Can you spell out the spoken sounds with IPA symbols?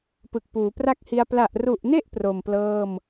p ɯ˨˩ k̚ p uː˩˦ p r a˥˩ k̚ h i˧ a̯ p l a˨˩ ʔ r u˨˩ ʔ n e˥˩ ʔ p r o˨˩ m p l ɤː˥˩ m

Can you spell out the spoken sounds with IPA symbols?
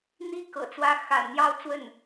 n̪ i˥ k ɤ̰˨˩ t͡s w ä˥ x a̰˨˩ n n̪ j ɑ˥˧ ʊ̯ t͡s w ə˥˩ n

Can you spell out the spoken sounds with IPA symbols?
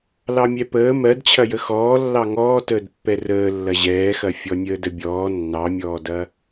l ɑ mʲ ɛ p əː m ɜ d t͡ɕʰ ɐ j ə x ɔː lː ɑ ŋ ɔː t əː d pː ɛ r əː lː ɐ ʑ ɛː x ɐ fʲ ɔ nʲ əː d ə bʲ ɔː nː ɑ mʲ ɔː d ɐ

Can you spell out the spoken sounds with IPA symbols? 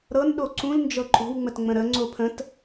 ɾ ɤ n ɗ o ǀ ũ l n d͡ʒ ɤ ǃʼ o̤ w ŋ͡m ə t ŋ͡m ə̃ ɾ ə ŋ͡ǀ o pʰ ə̃ t

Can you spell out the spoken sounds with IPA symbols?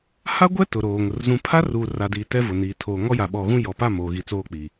h a˦ ɡʷ ɛ˦ t ʊ˨ ɾ oː˨ ŋ ʊ˨ r z ũ˨ pʰ a˦ r uː˨ r a˨ d iː˨ t ɛ˦ v ʊ˨ n iː˨ tʰ oː˨ ŋ ɔ˦ j a˨ ɓ ɔ˨ ɣ ũ˦ j ɔ˨ p a˦˨ m oː˨ ɣ i˨ t͡s oː˦ k͡p iː˨

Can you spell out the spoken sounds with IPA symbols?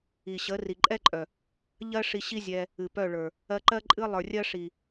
i˨ ɕ ə˨˦ r i˨ ǃʼ ɛ˦ ǃʼ œ˨ | ʎ ɜ˦ ʂ i˧ ɕ i˦ zʲ ɛ˧ | ɨ˨ p œ˦˨ ɭ ə˞˨ | ɜ˧ ǃ ɜ˦ ǃʼ ɨ˦ lˠ ə˞˨ rʲ ɜ˦ ʂ i˨

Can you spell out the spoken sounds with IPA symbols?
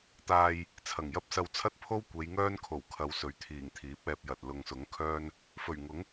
t̪ aː˧ j | t͡sʰ ɐ˨˩ ŋ j ɐ˥ p̚ s ɐ˧ w t͡sʰ ɐ˥ t̚ pʰ o˥ w kʷ e˨˧ j ŋ œː˥ n kʰ o˨˩ w kʰ ɐ˨˧ w s ɵ˨˥ ɥ t̪ʰ iː˨˩ ŋ t̪ʰ iː˨˥ p̚ ɛː˧ p̚ j ɐ˨ t̚ l ʊ˨ ŋ s ʊ˨˥ ŋ kʰ œː˥ n | f ɵ˨˩ ɥ ŋ ʊ˨˥ ŋ

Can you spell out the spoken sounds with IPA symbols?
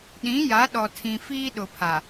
ɗ ĩ˨˦ j a˨˦ ɗ ɔ˨ tʰ ĩ˨ f iː˦ ɗ ʊ˨ pʰ a˨

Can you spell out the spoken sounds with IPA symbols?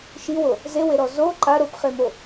ʃ i w o | z e w e ɾ ɔ z o ǃ a ɾ o p χ e m o

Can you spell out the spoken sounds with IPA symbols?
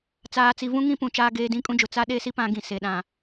t͡s aː˨ t͡s i˨ v ũ˦ ŋ ĩ˦ p ũ˨ t͡ʃ aː˦ ɡ eː˦ d ĩ˦ kʼ ũ˦ d͡ʒ ʊ˨ t͡s a˦ ɗ e˦ s i˦ p ã˦ ɡ ĩ˨ s e˨ ɗ ã˨

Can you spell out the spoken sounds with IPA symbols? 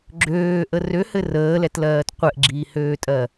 ɡ͡ǁ øː ʔ ə r ø h ɘ r əː l ɛ t l ɜː t qʷ ɛ ʔ ɡ͡ǁ iː h øː tʼ ɜ

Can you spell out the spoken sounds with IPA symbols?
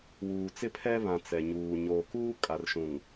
w uː˨ t͡s ɪ˦ pʰ ɛ˦ β ã˨ t͡s ɛ˨ ɲ uː˨ ɲ oː˨ k uː˦ kʼ a˨ r ʃ ũ˨ ŋ

